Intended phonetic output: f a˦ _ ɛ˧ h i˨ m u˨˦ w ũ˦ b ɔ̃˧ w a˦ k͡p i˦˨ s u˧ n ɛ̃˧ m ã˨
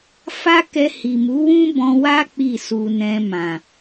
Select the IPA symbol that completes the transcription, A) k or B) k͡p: A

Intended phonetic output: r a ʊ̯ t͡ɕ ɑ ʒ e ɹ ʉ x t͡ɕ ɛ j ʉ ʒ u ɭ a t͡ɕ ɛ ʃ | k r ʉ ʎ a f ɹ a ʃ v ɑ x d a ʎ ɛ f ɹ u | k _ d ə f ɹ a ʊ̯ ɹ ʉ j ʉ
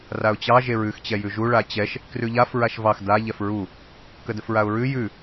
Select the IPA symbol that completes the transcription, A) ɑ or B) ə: B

